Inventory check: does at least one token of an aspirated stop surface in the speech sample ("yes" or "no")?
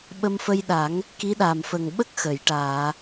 no